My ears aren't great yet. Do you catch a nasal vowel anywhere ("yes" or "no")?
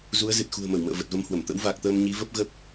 no